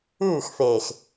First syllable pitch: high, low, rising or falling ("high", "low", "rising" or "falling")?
falling